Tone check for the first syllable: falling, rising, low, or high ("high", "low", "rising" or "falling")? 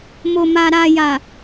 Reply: low